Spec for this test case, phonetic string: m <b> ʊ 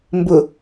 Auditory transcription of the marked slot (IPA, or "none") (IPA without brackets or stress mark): b